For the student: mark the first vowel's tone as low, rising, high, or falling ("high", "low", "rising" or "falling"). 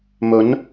rising